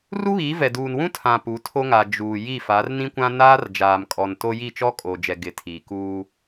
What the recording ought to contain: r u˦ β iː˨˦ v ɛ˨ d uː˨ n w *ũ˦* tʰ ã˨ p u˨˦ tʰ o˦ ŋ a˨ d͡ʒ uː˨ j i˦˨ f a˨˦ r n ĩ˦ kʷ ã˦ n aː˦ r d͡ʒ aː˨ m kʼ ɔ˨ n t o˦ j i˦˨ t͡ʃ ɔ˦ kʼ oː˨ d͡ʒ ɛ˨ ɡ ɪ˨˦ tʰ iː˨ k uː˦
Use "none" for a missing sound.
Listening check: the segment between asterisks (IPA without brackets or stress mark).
ũ˦